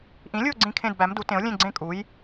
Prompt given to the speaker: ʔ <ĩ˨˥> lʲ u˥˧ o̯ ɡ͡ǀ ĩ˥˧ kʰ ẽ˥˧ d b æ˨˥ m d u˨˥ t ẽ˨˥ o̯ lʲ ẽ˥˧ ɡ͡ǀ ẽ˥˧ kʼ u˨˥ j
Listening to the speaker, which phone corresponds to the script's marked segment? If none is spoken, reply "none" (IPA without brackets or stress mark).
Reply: ĩ˨˥